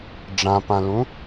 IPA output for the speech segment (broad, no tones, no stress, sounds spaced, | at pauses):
ɖ͡ʐ ã p ã l ũ